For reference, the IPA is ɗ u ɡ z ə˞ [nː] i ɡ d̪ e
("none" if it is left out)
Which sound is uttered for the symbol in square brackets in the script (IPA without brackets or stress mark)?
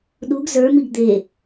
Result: m